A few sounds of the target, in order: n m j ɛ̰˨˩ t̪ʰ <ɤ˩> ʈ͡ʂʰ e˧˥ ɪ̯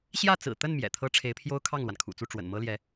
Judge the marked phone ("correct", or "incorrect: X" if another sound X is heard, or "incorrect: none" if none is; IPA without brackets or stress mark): incorrect: ɤ˥